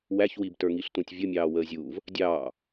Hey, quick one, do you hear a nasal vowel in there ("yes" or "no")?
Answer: yes